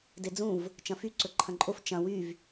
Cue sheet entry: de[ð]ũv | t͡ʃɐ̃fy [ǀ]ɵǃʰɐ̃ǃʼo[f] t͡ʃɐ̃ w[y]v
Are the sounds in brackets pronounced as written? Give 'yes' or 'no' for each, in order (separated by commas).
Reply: no, yes, yes, yes